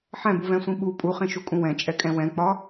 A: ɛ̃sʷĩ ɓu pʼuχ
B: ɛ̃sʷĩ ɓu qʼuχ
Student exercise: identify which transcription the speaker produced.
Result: A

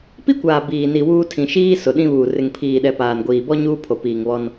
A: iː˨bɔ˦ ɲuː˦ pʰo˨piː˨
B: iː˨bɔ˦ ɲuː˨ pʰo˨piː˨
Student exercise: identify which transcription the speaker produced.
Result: A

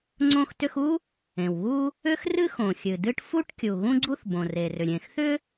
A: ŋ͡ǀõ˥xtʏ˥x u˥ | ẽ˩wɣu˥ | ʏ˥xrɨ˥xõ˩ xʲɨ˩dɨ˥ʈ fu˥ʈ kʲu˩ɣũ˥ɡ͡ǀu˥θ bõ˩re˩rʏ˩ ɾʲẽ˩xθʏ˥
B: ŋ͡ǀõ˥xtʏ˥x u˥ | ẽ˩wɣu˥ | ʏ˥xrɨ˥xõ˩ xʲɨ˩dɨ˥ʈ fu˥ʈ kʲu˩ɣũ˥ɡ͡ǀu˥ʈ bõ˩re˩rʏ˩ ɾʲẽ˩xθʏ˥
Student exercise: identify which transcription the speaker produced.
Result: A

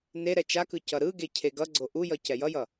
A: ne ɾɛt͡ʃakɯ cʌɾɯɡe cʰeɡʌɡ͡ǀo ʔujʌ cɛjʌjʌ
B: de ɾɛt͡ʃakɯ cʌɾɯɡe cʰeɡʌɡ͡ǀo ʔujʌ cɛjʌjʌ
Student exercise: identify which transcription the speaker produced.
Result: A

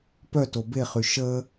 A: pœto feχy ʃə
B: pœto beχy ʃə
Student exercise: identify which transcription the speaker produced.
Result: B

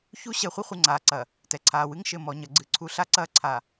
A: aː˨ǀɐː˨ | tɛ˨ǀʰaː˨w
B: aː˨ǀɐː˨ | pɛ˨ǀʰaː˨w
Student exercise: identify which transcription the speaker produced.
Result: A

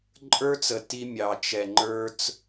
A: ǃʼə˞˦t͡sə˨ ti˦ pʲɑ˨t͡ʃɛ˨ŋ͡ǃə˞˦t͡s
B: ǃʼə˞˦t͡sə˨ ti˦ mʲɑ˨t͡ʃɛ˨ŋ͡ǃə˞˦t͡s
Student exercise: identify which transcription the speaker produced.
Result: B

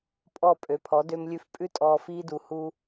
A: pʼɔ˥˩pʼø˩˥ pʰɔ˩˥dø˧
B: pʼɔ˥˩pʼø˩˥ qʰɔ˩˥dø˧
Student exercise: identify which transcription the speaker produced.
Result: A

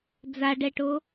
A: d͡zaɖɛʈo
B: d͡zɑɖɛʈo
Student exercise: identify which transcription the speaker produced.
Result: A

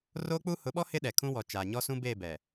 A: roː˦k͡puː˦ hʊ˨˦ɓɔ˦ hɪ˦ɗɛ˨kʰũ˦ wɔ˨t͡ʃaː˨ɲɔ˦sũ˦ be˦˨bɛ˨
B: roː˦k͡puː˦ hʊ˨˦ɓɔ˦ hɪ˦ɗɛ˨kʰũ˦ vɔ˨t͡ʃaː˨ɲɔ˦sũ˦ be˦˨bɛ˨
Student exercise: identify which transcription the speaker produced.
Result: A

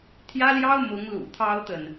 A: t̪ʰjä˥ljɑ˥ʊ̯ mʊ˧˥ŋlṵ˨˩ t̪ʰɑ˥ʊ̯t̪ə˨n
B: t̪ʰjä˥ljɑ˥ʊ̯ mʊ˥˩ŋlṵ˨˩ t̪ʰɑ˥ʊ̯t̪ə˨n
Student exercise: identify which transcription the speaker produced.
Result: A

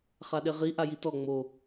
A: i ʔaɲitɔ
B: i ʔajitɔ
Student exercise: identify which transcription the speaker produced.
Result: B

